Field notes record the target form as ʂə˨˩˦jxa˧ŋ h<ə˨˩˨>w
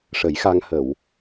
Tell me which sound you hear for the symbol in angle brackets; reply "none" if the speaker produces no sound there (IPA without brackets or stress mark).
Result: ə˨˩˨